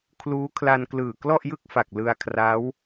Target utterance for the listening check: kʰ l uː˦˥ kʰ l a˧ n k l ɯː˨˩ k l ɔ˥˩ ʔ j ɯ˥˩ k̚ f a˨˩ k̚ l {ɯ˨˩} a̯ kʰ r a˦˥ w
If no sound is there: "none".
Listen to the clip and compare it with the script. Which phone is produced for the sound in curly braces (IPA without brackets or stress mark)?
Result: ɯ˧